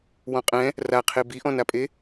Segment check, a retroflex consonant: absent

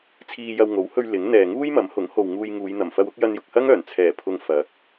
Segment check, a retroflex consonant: absent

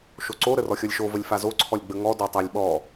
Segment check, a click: present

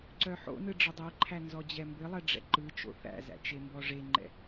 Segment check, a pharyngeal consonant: present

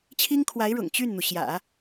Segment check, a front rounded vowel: present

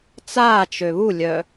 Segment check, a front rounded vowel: present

